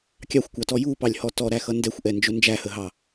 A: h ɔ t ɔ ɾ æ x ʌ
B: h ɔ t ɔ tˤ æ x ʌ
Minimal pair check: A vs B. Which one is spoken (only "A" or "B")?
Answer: A